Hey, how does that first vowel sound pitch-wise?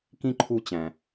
high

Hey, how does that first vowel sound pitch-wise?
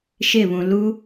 falling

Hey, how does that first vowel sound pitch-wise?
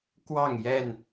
falling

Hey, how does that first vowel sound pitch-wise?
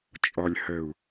low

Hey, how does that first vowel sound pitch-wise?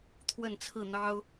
falling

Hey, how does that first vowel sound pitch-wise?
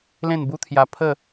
falling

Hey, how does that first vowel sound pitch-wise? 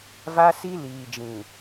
high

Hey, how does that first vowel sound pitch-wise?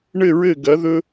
falling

